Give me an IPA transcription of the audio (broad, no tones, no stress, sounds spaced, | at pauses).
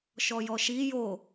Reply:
ʃ ɔ j ɔ ʃ i j o